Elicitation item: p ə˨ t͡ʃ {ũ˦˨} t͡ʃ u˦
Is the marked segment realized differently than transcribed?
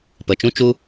yes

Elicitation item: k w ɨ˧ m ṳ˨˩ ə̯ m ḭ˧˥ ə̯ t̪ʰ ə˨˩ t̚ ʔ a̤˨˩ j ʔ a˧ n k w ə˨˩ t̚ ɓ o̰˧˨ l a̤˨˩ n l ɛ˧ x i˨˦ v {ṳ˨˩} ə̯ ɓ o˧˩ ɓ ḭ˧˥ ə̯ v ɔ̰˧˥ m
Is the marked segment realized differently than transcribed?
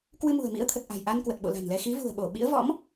no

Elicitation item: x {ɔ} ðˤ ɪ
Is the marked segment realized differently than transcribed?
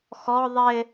no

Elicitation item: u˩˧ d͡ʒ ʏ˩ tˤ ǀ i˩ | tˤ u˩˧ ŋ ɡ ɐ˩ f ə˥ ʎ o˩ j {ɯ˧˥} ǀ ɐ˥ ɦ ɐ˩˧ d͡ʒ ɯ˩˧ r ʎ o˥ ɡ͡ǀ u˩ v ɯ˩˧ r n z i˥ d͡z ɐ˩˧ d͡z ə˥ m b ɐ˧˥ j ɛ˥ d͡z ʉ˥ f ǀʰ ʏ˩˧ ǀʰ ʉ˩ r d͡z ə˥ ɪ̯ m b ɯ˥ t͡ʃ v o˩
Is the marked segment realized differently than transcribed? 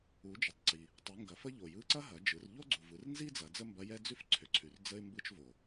no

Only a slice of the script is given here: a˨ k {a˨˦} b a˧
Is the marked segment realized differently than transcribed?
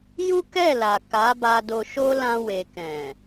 no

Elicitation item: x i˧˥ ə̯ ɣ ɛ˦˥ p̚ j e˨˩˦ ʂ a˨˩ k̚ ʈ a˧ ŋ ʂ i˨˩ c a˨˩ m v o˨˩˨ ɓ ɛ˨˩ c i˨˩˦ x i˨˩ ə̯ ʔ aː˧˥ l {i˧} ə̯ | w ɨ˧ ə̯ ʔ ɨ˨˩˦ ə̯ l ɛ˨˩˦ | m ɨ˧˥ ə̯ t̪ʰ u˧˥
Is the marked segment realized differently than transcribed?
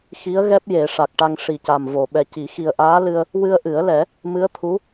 yes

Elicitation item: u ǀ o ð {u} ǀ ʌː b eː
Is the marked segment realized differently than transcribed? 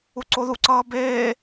no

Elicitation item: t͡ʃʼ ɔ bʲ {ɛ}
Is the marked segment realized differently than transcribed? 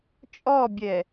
no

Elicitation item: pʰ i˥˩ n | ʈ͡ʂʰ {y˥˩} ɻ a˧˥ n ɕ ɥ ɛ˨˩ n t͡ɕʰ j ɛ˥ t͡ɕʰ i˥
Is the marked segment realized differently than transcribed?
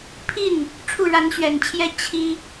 yes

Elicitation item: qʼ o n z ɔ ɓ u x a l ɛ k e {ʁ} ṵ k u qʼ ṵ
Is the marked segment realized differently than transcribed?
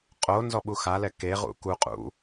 no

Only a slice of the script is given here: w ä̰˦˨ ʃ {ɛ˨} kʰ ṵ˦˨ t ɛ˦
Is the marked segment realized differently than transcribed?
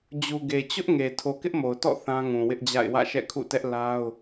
yes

